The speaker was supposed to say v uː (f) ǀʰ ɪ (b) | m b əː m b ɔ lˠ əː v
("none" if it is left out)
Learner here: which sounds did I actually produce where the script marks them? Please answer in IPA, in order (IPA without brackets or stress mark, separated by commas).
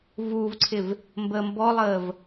v, v